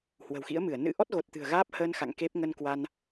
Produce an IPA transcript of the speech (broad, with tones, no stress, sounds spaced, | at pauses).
h w ə̤˨˩ w x ḭ˧˥ ə̯ m ɨ˧˩ ə̯ n ɨ̰˧˥ ʔ ɔ˦˥ t̚ ɣ o˨˩ t̚ t̪ ɨ̤˨˩ ə̯ ɣ aː˦˥ p̚ h əː˧ n x a̰˧˨ ŋ k e˦˥ p̚ ŋ ə˧ n k w a˧ n